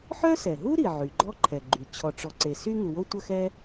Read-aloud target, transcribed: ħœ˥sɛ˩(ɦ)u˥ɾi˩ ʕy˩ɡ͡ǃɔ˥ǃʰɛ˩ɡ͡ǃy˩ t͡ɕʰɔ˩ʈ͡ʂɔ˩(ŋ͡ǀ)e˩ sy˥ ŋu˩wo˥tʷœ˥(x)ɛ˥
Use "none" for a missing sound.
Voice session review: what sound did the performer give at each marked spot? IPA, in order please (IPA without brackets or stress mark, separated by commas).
ɦ, ǀ, x